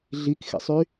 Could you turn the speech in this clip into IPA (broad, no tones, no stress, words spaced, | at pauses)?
ɮikxḛsˤy